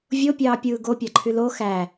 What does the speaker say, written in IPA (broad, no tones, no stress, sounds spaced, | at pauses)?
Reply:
vʲ o pʲ ɑː pʲ ɯː ɡ o pʲ ɑ ǃʰ y l o x æ